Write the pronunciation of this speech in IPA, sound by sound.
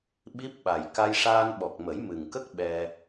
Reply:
ɓ i˦˥ p̚ ɓ a˨˩ j k a˧ j ʂ aː˧ n ɓ ɔ˨˩ k̚ m ə˨˩˦ j m ɨ˨˩ ŋ k ə˦˥ k̚ ɓ ɛ˧

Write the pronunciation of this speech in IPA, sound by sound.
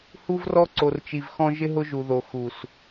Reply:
h u˦ v r ɔ˦ ǀ o˨ r t͡ʃ i˨ v x ɔ̃˦ ʒ ɪ˦ ɦ ʊ˦ ʒ u˨ ð o˨ x u˨ s

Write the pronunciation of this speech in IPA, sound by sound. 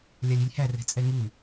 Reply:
lʲ a lʲ i lʲ h æ r ɛ̤ t͡sʼ ɛ ŋ u

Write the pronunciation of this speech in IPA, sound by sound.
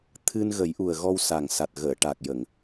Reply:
t̪ʰ ɨ˧ n ɣ ə˨˩˦ j ʔ u˨˩ ə̯ ɣ ɔ˧ w s a˨˩ ŋ s a˨˩ t̚ ɣ əː˨˩˨ ʈ a˨˩ k̚ j ə˨˩˨ ŋ

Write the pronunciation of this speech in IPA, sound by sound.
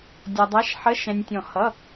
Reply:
dʲ ɒ˧ dˤ æ˧˥˧ ʃ ħ ə˧˥˧ ʃ ɛ̃˧ nʲ tʲ ɔ̃˧˩ h ʌ˧˥˧

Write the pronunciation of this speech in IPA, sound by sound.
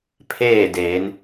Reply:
pʰ eː˥˨ d eː˩˧ n

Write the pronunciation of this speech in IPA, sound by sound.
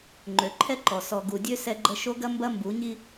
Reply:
ŋ͡ǃ ø˨ ǃʰ ɛ˦ ǃ ɔ˨ s ɔ˨ ɡ u˨ dʲ ø˦ s ɛ˦ ɡ͡ǃ ə˦ ʃ o˦ ɡ ɐ˦ m b ɐ˦ m b u˨˦ ɲ i˦

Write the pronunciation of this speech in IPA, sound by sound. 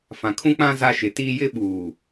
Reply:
f ã˨ kʰ ũ˦ k͡p ã˦ z a˦ ʃ ɪ˨˦ t iː˦ j ɪ˦ ɓ uː˨

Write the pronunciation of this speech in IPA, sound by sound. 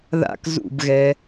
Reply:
ð a̰ k z ṵ b ɣ ɛ

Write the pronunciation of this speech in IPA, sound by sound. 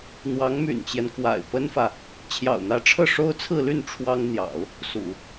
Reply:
n̪ w ɑ˧˥ ŋ m y̰˨˩ n t͡ɕ j ɛ˦ n k w a̰˨˩ ɪ̯ p ə˥ n f ä˨ | t͡ɕʰ j ɑ̰˨˩ ʊ̯ n̪ ä˧˥ ʈ͡ʂʰ ɤ˥˩ ʂ o˥ ʊ̯ t͡sʰ ɹ̩˥˧ l y˥˩ n ʈ͡ʂʰ w ɑ˥ ŋ n̪ j ɑ̰˨˩˦ ʊ̯ | s ṵ˨˩˦

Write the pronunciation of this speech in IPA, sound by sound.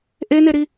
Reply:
ʔ e n e ɾ i

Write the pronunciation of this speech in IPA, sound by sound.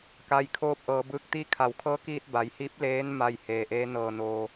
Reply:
k a˧ j kʰ oː˥˨ p̚ ʔ ɤː˩˧ b ɯː˧˥ k̚ t̪ iː˥˨ kʰ a˩˧ w kʰ ɤː˧˥ k iː˧ t̚ b a˩˧ j h iː˧˥ p̚ l eː˧˥ n m a˥˨ j h eː˩ ʔ eː˧˥ n ɤː˧˩ n oː˩

